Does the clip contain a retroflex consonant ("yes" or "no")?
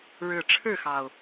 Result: yes